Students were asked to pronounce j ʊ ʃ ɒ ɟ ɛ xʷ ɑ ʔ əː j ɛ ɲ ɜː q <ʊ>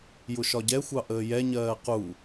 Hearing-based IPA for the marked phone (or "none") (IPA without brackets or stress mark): u